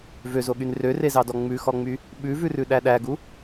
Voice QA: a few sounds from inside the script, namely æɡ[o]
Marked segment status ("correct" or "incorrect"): incorrect